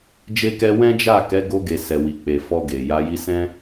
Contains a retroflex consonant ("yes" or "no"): no